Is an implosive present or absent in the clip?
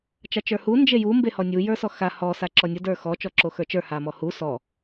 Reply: absent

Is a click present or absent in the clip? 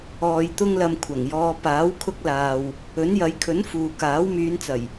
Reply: absent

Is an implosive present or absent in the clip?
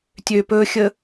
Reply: absent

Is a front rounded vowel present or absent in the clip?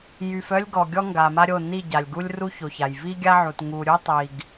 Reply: present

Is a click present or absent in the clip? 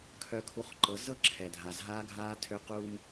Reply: present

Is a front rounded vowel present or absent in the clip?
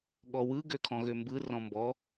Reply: present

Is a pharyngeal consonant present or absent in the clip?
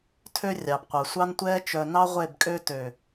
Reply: absent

